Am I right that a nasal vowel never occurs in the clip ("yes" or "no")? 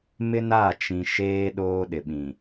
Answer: no